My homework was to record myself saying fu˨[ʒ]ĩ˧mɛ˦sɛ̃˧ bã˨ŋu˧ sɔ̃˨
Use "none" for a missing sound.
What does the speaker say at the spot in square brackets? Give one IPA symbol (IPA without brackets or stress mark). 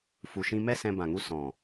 ʃ